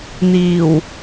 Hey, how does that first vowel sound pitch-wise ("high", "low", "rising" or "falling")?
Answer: low